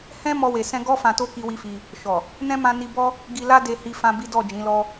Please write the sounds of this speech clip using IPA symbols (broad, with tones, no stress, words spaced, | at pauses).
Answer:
hɛ̃˦ mɔ˧we˨sɛ̃˧ɡɔ˦ fã˧to˦ ki˦wi˦fi˧ | ʃɔ˨ | nɛ̃˦mã˧ ni˧bɔ˦ | ɡi˧la˦ de˧hi˧fã˧ bi˦dɔ˦˨d͡ʒĩ˨˦lɔ˦